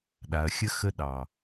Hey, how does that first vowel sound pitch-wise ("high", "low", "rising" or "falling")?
low